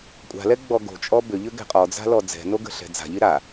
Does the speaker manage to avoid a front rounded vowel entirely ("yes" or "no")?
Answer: no